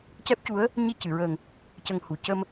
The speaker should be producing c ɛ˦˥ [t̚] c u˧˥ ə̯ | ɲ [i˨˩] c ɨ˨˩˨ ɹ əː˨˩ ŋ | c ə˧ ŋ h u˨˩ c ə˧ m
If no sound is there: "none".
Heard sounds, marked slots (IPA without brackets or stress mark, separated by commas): p̚, i˧